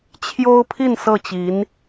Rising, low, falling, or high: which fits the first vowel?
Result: high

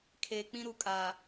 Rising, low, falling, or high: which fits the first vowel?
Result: low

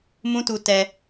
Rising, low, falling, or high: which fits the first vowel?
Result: high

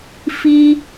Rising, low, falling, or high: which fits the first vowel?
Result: high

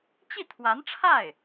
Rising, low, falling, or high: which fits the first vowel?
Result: falling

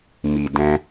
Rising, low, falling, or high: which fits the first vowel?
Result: low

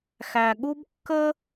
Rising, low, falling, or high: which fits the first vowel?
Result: low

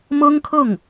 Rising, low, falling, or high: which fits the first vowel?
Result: high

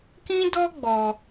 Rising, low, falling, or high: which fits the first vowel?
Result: high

